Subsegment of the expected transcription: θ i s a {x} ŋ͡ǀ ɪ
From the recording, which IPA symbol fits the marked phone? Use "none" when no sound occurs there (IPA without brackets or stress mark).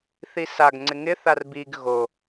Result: ɡ